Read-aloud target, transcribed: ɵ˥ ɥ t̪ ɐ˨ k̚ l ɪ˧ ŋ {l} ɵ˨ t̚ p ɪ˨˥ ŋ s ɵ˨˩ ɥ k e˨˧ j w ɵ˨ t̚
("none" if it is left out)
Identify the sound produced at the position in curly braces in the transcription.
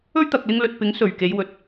l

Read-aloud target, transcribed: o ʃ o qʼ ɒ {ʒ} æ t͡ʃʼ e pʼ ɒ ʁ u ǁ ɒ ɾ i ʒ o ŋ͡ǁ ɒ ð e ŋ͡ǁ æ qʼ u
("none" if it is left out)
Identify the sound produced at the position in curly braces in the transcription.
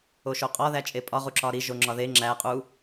ð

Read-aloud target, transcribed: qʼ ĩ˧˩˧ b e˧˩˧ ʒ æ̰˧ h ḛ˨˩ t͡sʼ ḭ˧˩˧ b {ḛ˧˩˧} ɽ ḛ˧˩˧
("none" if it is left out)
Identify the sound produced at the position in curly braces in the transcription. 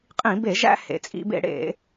ḛ˧˩˧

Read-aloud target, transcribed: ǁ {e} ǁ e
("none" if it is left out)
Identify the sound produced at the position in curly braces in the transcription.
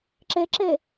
e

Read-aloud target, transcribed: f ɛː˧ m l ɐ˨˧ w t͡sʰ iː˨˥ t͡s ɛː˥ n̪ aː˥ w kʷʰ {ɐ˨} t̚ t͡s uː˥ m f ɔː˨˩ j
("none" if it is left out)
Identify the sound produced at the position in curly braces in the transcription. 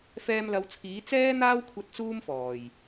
ɐ˧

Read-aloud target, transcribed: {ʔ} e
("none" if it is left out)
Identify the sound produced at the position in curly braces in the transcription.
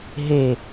ɦ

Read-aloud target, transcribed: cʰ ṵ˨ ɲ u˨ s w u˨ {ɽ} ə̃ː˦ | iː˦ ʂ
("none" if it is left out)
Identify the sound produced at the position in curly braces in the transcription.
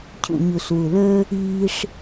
l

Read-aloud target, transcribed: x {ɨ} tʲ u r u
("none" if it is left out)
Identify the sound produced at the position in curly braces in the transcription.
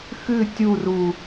ɨ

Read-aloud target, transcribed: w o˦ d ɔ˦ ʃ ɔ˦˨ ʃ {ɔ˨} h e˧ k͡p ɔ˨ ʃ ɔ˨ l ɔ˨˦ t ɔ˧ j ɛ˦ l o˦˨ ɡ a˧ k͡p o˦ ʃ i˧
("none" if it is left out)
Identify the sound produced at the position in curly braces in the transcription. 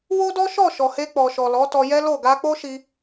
ɔ˨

